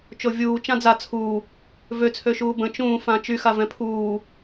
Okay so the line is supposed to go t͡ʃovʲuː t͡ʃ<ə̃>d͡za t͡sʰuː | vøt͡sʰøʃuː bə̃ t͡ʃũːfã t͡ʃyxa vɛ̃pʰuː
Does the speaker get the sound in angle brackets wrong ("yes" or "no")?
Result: yes